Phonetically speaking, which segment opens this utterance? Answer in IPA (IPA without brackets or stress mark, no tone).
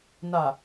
n